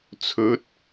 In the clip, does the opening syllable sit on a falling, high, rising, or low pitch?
rising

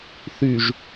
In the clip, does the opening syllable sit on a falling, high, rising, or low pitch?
low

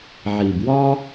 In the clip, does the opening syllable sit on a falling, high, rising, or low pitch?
low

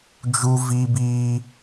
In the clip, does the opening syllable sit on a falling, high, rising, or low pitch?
high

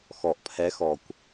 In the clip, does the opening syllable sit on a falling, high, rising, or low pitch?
low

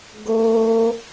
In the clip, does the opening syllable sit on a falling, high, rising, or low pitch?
high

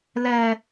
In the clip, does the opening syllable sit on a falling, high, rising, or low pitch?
low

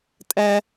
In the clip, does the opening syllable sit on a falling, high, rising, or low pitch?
high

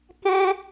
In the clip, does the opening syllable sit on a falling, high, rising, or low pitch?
high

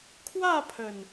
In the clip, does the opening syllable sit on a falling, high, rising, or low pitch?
falling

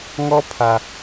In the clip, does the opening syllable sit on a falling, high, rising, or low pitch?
high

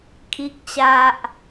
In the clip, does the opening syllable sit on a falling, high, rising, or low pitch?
low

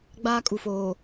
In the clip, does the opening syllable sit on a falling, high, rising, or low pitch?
high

